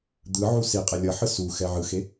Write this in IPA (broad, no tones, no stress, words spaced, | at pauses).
d̪ɯʕu si qʼelʲʌħɯ suxɛ ʕɯxe